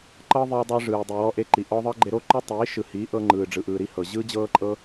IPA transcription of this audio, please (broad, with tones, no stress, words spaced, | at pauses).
ǃɤː˦ðˤiː˧dˤɯː˧ ʐɯː˨ dˤi˨wɔ˦ ʔe˧ǃi˨ ʔɔ˧ðˤɤ˦ɡ͡ǃe˧ɾo˦ ǃo˦tˤiː˨˦ ʃɯ˨hiː˨˦ ʔɤ˧ŋ͡ǃɯː˨ɖ͡ʐɯ˨ʔɯː˨ ɾi˦hɤ˨ ʑɯː˦d͡ʑɤː˦ǃʼɤ˦